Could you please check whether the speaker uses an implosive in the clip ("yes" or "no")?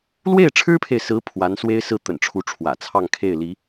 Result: no